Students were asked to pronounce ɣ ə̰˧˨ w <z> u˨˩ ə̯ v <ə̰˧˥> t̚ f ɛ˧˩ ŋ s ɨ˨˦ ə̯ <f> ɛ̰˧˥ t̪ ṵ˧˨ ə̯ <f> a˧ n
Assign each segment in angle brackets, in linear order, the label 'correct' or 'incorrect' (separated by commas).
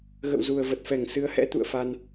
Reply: correct, incorrect, incorrect, correct